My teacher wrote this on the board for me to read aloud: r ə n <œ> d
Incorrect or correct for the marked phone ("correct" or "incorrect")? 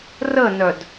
correct